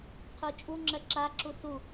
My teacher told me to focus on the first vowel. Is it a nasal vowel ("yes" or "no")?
no